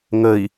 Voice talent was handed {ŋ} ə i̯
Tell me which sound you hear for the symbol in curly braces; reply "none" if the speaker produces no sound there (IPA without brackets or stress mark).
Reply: ŋ